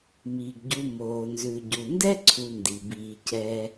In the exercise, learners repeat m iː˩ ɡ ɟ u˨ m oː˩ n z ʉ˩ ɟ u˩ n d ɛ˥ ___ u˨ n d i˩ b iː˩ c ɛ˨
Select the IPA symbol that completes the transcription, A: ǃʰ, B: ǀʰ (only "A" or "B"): B